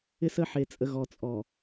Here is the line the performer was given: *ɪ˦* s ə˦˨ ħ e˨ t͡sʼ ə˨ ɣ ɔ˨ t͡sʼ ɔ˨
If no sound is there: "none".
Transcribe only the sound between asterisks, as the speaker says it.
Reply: ɪ˦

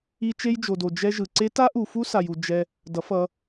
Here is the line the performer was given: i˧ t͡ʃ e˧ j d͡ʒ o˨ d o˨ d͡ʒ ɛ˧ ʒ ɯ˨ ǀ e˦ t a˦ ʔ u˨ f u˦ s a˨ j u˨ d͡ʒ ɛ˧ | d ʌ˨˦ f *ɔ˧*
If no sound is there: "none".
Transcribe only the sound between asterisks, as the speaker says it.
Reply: ʌ˧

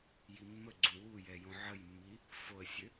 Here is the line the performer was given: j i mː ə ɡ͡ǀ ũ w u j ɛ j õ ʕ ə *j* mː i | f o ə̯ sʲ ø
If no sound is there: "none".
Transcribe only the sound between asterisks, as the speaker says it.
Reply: j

